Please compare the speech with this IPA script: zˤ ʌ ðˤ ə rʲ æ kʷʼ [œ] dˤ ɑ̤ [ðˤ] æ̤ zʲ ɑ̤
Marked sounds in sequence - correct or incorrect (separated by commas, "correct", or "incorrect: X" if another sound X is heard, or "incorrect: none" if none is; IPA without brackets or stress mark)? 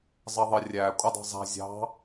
incorrect: ə, incorrect: zˤ